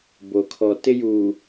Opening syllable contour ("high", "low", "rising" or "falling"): low